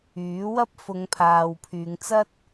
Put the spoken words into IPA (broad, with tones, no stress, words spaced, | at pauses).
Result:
yː˨˥wɐ˥p̚ fʊ˨˧ŋpʰaː˨wpʰyː˨˧ŋt͡sɐ˥t̚